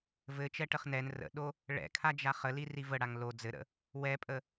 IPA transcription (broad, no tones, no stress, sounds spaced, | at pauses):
v ɘ t͡ʃ ɛ ʈ ə χ n ɛ n r ə̰ ɗ o | ɭ ɛ̰ kʰ a d͡ʒ a χ ə l i r i v ə ɽ a ŋ l o d͡z ɘ ɾ ə̰ | w ɛ pʼ ə